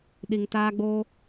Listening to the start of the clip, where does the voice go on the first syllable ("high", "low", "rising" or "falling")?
low